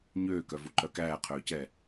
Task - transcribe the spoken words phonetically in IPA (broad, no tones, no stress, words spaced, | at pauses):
ɲøːkœvuǃœ kæːqʰøːcɛː